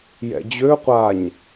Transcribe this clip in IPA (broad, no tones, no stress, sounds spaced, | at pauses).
j ɛ̰ d͡ʑ ø qʷ a ɲ